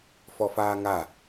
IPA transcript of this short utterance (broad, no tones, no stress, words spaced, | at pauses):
fɔfaːŋa